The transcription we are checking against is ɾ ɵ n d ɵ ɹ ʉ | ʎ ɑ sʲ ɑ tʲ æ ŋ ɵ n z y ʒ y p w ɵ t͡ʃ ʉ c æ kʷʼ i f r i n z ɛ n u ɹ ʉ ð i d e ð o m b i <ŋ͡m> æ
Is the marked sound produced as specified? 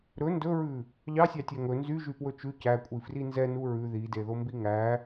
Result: no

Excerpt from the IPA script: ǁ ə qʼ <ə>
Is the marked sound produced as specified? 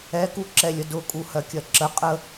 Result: yes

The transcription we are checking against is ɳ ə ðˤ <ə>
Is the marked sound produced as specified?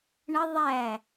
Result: no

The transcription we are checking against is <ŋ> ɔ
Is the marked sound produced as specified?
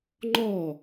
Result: no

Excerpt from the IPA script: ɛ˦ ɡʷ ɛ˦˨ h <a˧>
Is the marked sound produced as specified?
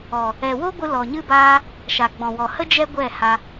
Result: yes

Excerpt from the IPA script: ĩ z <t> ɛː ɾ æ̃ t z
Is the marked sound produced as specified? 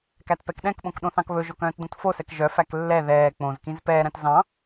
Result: no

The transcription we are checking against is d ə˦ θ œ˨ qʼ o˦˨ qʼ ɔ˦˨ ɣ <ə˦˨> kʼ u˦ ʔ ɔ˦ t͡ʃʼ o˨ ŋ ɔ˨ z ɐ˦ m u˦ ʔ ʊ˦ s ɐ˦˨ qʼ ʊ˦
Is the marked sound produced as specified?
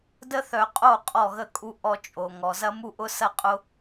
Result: yes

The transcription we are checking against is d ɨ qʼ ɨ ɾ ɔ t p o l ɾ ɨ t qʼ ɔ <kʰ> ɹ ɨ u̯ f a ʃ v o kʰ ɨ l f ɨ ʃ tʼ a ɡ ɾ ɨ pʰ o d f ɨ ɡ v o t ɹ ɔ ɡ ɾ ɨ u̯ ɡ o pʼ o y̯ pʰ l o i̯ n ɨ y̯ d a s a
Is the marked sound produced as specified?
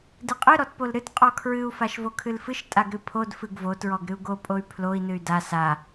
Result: yes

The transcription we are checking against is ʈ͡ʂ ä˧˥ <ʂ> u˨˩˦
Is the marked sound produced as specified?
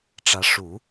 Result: yes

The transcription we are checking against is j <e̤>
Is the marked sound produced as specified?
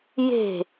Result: yes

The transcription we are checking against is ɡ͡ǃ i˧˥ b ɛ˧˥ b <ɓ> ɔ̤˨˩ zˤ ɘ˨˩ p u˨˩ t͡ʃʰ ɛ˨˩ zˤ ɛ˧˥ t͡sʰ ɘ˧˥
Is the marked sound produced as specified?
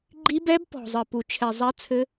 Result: no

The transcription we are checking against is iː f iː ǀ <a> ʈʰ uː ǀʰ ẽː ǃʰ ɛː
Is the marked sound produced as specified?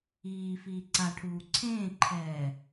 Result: yes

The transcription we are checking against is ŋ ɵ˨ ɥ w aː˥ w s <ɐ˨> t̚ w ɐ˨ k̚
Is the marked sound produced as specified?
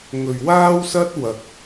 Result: no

